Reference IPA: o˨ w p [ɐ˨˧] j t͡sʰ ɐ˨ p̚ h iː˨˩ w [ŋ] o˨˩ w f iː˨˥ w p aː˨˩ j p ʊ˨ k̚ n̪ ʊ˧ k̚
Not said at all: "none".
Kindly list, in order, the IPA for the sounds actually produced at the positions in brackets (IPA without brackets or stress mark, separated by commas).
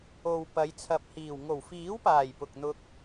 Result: ɐ˨˧, ŋ